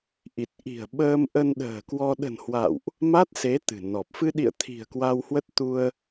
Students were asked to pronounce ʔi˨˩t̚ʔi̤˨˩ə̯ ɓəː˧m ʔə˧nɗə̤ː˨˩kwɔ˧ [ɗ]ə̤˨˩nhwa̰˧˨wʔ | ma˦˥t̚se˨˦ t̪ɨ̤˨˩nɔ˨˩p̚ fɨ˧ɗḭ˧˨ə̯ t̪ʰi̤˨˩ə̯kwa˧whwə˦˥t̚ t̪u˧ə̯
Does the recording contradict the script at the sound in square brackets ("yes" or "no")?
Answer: no